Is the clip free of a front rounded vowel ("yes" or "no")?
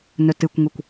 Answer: yes